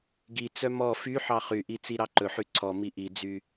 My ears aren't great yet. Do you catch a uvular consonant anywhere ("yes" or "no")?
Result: yes